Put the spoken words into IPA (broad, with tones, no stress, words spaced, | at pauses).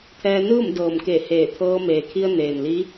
t̪ʰɛː˧ nɯː˥˨mdɤː˩mke˧˩ heː˧˩t̪ʰɤː˧ meː˩kʰi˧ə̯ neː˩nli˧˥